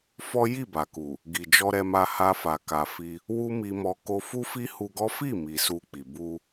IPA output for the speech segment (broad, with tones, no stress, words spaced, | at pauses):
fɔ˦ ji˦˨ba˨ku˨ | ɡi˨ d͡ʒɔ˧ɾɛ˧ma˧ ha˧fa˨ ka˨ fi˧ | wu˦mi˧mɔ˧ ko˧fu˦fi˦ hu˧ɡɔ˦ fi˦˨mi˨ su˧k͡pi˨ bu˧